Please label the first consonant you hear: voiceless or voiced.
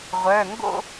voiced